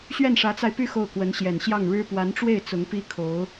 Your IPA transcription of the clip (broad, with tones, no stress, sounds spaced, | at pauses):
ɕ ɥ ɛ˥˩ n ʂ ä˧˥ t͡s a˧ ɪ̯ p y˥˧ x o˥˩ ʊ̯ k w ə˧˥ n ɕ j ɛ˨˩ n ɕ j ɑ˥˩ ŋ ɻ ɻ̩˥ p w a˧˥ n ʈ͡ʂ w e˥˩ ɪ̯ t͡s ʊ˧˥ ŋ p i˥ kʰ o˧˥ ʊ̯